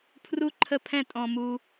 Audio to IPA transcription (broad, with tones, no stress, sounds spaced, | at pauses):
pʰ r u˦ ǃʰ ə˦ pʰ ɛ̃˦ tʼ ɔ̃˧ m u˧